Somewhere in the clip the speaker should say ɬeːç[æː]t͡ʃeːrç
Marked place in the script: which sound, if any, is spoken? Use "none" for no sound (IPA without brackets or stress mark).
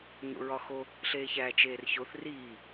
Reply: æː